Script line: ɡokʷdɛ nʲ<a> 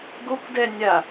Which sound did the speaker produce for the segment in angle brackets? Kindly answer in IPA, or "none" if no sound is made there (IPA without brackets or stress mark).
a